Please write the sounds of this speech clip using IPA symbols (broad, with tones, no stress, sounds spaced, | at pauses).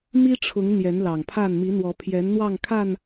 m i˦ ʈ͡ʂʰ ʊ˨˦ ŋ n̪ j ɛ˨˦ n l ɑ˨˩ ŋ pʰ a˥˨ n m i˨˦ n̪ w ɔ˨˦ pʰ j ɛ˨˦ n n̪ w ɑ˥˨ ŋ kʰ a˥˨ n